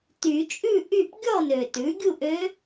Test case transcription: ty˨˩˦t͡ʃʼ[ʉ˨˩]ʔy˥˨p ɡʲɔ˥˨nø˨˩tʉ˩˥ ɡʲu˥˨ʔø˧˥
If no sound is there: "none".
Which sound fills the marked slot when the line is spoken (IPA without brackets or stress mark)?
ʉ˥˨